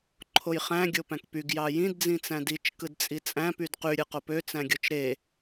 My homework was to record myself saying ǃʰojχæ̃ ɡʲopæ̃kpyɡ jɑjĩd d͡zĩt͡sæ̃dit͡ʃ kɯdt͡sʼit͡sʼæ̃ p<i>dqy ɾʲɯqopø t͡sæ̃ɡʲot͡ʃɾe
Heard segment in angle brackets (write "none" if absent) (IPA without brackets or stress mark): y